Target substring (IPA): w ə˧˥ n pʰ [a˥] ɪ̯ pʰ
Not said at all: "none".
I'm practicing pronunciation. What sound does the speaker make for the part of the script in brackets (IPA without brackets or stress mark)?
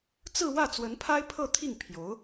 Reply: a˥